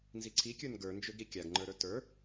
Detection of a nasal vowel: absent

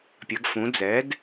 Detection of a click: absent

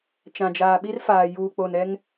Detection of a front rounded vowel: absent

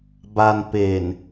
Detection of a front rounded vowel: absent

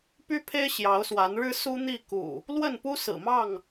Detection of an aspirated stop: present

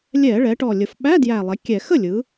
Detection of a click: absent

